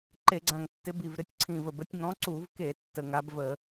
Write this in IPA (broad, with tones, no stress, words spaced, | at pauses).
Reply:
ǃe˧˩˧ɡ͡ǀã˨˩ŋtːɪ˨˦ bi˨˩vɾɪ˨˦tʲ ǀʰĩ˨˩və˨˩bə˨˦tʲ ŋɔ̃˨˦ǀu˧˩˧vke˧˩˧ tːə˨˩ŋa˨˦b və˧˩˧